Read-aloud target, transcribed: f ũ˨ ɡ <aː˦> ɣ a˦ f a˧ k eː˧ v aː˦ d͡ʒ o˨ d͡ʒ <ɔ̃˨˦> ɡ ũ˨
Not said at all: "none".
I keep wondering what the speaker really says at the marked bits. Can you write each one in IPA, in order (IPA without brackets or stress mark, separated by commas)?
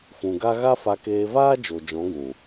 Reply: a˦, ɔ̃˨˦